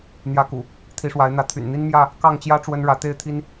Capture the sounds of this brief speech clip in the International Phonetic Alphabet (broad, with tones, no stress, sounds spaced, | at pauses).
n̪ j ä˨˦ k ṵ˨˩ | t̪ʰ i˨˦ ʂ w a˨˦ ɪ̯ n̪ ä˨˦ t̪ʰ y̰˨˩ n n̪ i˦ n m j ä˥˨ | k ɑ˥˨ ŋ t͡ɕ j ä˦ ʈ͡ʂ w ə˦ n ɻ ä˨˦ t̪ e˥˨ ɪ̯ t̪ʰ i˦ n